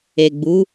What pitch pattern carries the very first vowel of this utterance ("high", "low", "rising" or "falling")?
low